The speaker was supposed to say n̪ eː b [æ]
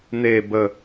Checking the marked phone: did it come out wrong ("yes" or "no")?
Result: yes